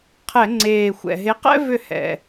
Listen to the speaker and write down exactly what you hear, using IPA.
qʰ ɛ˧˩˧ ŋ͡ǀ eː˨˩ xʷ ɛ̰˨˩ ɦ e˨˥ q ɛ̰˥ v ʏ˥˩ h ɛ̰˨˩

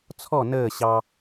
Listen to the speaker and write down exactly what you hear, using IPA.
t͡sʰ ɔ n əː ɕ ɑ

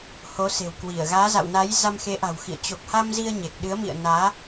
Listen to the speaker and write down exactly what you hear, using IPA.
h o˨˦ s e̤˨˩ w k w i˧˩ ə̯ ɣ aː˨˦ z a̰˧˨ w n a˨˦ j z a˧ m x e˨˦ ʔ a̤˨˩ w x ḭ˧˨ ə̯ t͡ɕ o˨˩ k̚ h a˧ m z i˧ ə̯ ɲ e˨˩ k̚ ɗ ɨ˨˦ ə̯ m ḭ˧˨ ə̯ n aː˨˦

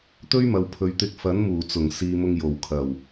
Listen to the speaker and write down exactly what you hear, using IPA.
t̪ ɵ˥ ɥ m ɐ˨ w pʰ ɵ˨ ɥ t̪ ɪ˧ k̚ f ɐ˨˥ n m uː˨˩ t͡s ʊ˨˩ ŋ s iː˨ m ʊ˧ ŋ j o˨˩ w kʰ ɐ˨˩ w

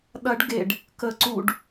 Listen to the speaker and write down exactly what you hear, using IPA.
ɗ ɐ ɖ ɡ e ɖ | k ə ǀ u ɖ

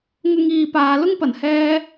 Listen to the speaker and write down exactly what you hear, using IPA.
ŋ ʊ˥ ŋ iː˧ p aː˨˧ l ʊ˥ ŋ p ɐ˨˩ n h ɛː˧

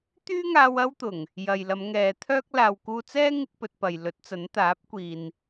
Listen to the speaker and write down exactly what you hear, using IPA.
t̪ yː˥ ŋ aː˧ w ɐ˥ w t̪ ʊ˨˩ ŋ | j ɐ˨ j l ɐ˨˧ m ŋ ɛː˨˧ t̪ʰ œː˥ k̚ l aː˨ w k uː˧ t͡s ɛː˥ ŋ ɪ˥ k̚ p ɵ˧ t̚ p ɐ˨ j l ɵ˨˥ t̚ t͡s ɐ˨˥ n t̪ aː˨˥ p̚ kʷ iː˨ n

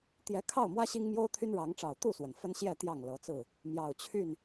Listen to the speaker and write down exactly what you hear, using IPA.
t̪ j ɛ˨˦ kʰ ɑ˥˨ ʊ̯ m w ä˦ ɕ i˦ ŋ m j o˦ ʊ̯ t̪ʰ y˦ n ɻ ɑ˨˦ ŋ ʈ͡ʂ ɑ˨˩ ʊ̯ t̪ u˥˨ s w ə˩ n f ə˦ n ɕ j ɛ˥˨ t̪ j ɑ˥˨ ŋ l ɤ˨˦ t͡s ɹ̩˥˨ | m j ɑ˨˩ ʊ̯ t͡ɕʰ y˥˨ n

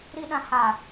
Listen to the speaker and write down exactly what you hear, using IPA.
ɾ i˦ ɗ ã˨ h a˨

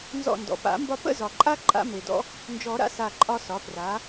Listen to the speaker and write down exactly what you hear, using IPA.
n z ɔ̰˧˩ n d ɔ̰˩ p a̰˨˩˦ m b ɒ˦ p ə̰˥˨ z ɒ˩ ǃʼ a˦ ǃʼ a̰˦ m e˩ d ɔ̰˦ | n d͡ʒ ɔ˨˩˦ ɾ a̰˦ s a˧˩ ǃʼ ɒ˦ s ɒ˩˥ p r a˩˥

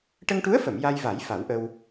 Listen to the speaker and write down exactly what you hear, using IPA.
ʈ ə˧ ŋ ʈ u˧˥ ə̯ f ə˨˩˨ m j a˧ j v a˨˩˦ j f a˨˩˦ w ʔ ə˧ w

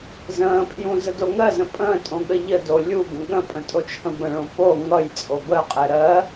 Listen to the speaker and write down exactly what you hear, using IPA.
z ə̃ː pʰ j ũ z ə d o ŋ ɜ z ə̃ pʼ ə̃ː tʼ õ ɠ ə ʎ ə d o lʲ u ɡ ə̃ ɠ ə̃ pʼ ə̃ tʼ o t͡ʃʰ ə̃ b ə̃ ɭ õ p o ŋ ʌ j t͡sʼ o b ə qʼ ɛ ɾ ɜ

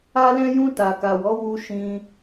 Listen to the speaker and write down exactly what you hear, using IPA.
a˧ l ɛ̃˧ j ũ˧ t a˨ k a˨ w ɔ˨˦ w u˧ ʃ ĩ˧

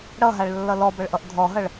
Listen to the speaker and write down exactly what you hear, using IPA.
ɽ ʌ ɦ a ɭ lː ʌ l ɔ b ʌ ɭ ʔ ʌ ʔ dʱ ɔ ɦ ʌ ɭ

